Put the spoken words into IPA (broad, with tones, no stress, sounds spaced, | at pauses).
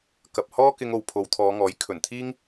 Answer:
k ɐ˨ p̚ h ɔː˥ k ɪ˧ ŋ o˨ w pʰ o˨˧ w t̪ʰ ɔː˨˧ ŋ ɔː˨˥ j kʰ ɵ˨˩ n t̪ʰ iː˥ ŋ